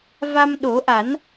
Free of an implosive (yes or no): no